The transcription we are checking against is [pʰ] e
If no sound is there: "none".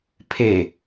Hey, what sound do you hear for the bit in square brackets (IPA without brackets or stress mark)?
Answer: pʰ